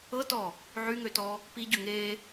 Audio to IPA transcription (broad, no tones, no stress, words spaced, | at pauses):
ɤtɔ | ʕyŋøtɔ | piɟø ŋe